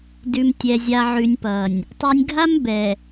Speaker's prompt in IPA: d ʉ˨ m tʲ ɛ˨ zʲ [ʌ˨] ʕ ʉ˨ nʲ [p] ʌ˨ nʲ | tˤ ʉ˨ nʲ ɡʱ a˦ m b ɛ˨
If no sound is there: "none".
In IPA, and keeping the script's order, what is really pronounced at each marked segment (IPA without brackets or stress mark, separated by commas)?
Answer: a˨, p